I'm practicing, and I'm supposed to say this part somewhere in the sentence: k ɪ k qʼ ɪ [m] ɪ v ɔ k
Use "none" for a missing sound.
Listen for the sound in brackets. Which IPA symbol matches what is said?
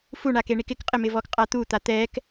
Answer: m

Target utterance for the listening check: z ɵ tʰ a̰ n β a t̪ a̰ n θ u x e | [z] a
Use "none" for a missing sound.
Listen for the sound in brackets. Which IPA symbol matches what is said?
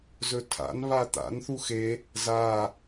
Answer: z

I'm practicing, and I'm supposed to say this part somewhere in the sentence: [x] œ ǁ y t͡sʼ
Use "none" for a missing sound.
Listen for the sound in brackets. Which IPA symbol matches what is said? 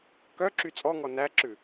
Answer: k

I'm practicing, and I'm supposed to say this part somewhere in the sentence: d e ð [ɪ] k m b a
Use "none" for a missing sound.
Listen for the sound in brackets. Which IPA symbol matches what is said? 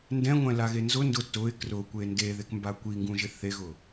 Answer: ɪ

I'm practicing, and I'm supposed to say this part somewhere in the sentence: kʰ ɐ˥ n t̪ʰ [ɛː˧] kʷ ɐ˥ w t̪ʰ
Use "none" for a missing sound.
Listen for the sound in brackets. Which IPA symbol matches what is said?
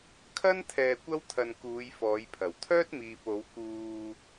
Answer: ɛː˧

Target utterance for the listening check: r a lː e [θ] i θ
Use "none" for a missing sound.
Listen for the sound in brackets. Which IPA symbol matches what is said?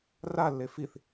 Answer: f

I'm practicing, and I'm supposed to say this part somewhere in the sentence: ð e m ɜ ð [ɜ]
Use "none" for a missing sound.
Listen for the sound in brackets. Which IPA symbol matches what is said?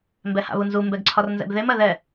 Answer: ɛ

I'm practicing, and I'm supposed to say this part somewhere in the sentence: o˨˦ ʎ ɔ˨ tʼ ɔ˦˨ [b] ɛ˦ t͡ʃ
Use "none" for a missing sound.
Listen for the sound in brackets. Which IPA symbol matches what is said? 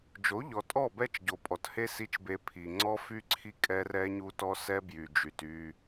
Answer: b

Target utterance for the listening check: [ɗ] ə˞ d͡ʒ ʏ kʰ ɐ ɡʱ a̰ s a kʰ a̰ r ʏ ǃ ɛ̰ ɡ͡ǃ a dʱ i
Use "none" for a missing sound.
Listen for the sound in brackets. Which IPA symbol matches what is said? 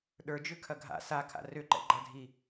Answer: ɗ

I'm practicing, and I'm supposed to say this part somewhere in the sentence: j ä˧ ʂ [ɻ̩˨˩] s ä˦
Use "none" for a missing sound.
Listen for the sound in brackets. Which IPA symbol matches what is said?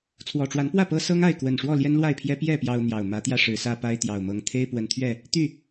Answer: ɻ̩˨˦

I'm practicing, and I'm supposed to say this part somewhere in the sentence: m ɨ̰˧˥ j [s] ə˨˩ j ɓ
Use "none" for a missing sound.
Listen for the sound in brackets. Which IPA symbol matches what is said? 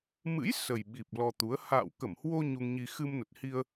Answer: s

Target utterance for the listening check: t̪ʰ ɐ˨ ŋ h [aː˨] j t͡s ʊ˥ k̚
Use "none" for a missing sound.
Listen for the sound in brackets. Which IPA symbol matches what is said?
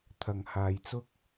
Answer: aː˨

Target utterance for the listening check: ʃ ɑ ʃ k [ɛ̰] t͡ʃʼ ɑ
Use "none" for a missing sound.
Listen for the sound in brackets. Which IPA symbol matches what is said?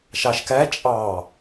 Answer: ɛ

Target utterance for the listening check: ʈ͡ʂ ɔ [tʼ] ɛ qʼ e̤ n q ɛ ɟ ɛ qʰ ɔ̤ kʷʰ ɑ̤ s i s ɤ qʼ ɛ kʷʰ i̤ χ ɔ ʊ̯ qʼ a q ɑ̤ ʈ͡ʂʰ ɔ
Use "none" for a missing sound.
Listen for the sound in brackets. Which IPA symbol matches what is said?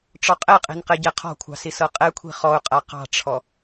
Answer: qʼ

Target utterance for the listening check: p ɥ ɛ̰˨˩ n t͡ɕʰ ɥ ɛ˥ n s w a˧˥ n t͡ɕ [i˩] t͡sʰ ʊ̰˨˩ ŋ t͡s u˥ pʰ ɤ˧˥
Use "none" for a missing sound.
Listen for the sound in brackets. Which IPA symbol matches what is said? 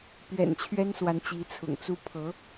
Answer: i˧˥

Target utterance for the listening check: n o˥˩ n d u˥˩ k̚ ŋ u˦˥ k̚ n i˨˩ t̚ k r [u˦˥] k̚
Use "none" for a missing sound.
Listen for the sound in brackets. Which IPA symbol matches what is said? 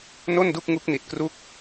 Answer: u˥˩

